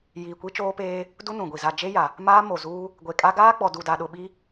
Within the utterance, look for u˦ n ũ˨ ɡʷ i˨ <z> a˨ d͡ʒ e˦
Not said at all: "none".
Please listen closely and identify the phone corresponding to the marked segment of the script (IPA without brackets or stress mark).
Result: z